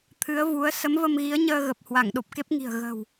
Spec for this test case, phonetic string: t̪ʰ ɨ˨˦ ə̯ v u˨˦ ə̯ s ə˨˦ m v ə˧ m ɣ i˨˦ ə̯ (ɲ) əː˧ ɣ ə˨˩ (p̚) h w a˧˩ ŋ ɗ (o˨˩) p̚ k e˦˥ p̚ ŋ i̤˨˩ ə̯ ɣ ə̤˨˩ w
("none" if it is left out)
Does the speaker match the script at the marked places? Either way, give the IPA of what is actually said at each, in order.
ɲ, p̚, o˨˩

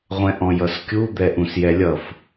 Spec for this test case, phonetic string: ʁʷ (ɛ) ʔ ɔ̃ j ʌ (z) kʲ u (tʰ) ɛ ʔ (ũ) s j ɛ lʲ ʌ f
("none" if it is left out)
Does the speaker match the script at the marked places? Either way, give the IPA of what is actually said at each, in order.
ɛ̃, s, d̪, ũ

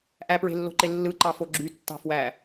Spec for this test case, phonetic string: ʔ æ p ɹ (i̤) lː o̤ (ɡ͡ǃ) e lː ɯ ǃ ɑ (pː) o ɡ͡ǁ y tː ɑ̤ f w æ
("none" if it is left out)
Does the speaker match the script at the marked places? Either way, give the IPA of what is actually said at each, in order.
e̤, ǃ, f

